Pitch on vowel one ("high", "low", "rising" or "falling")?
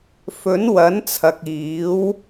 rising